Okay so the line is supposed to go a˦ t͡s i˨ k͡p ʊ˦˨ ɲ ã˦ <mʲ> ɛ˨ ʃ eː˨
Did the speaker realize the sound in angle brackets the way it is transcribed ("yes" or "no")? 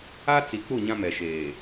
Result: no